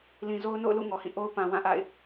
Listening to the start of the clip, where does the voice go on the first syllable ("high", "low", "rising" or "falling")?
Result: low